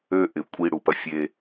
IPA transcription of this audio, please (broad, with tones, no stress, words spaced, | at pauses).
ø˦ʔɪ˨ kʷʼi˦ ɽu˨pɐ˦ fʲe˦